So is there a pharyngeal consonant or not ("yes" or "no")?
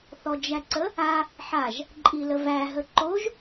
yes